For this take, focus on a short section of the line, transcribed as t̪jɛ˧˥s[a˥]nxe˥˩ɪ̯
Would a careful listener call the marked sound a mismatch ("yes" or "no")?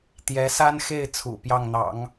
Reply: no